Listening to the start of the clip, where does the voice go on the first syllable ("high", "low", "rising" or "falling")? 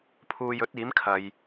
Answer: low